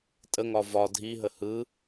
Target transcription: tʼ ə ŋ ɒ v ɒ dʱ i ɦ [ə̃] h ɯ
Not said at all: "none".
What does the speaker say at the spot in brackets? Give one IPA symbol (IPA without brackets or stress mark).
ə